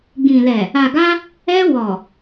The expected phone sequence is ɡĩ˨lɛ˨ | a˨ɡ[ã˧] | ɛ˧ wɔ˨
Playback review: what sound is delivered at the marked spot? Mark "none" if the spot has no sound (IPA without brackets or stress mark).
a˧